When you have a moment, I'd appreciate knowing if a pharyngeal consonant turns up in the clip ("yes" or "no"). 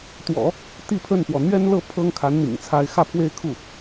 no